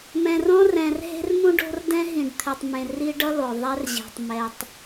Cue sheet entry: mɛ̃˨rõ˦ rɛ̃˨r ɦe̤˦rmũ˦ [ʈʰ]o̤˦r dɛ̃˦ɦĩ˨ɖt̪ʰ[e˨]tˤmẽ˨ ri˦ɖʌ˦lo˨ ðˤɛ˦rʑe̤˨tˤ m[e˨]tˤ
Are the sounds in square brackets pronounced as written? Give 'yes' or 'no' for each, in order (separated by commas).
no, yes, no